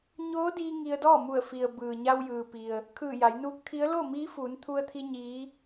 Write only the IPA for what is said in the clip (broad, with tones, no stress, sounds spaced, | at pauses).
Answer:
ɲ oː˧˥ d iː˧ ŋ i˧ ə̯ d ɔː˥˨ m u˧˩ ə̯ f i˩ ə̯ b ɯː˩ ɲ a˧ w j ɯː˩ p i˩ ə̯ | kʰ ɯː˧˩ j a˩˧ j n uː˧˥ k̚ t̪ʰ i˧˥ ə̯ l o˥˨ m iː˧˥ f uː˩˧ n t̪ʰ u˧ ə̯ t̪ʰ i˧ ɲ iː˧˥